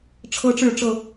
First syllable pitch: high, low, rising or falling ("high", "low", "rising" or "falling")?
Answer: high